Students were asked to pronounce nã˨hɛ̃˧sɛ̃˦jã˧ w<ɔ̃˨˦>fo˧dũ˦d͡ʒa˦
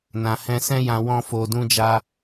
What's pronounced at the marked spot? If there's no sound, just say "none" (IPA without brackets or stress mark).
ɔ̃˦